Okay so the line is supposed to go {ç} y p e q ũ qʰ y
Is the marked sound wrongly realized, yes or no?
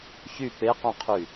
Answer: no